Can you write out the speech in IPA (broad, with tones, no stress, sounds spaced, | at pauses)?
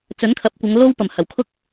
t͡s ɵ˨˥ n kʰ ɐ˨˥ p̚ kʷ ɐ˨˧ ŋ l o˥ w p ɐ˨˩ m h ɐ˨˩ w kʰ ʊ˥ k̚